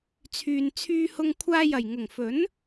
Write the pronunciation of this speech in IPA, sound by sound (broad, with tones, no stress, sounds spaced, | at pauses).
t͡sʰ yː˨ n t͡sʰ yː˧ h ʊ˧ ŋ kʷʰ aː˧ j ɐ˨˩ j ŋ ʊ˨˩ ŋ f ɵ˨˥ n